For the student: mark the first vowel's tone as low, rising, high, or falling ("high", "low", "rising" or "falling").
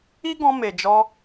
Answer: high